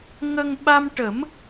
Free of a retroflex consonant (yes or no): no